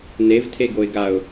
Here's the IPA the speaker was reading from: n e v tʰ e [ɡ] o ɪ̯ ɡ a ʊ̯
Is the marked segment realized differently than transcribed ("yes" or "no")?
no